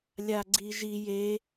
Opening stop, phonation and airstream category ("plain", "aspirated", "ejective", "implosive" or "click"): click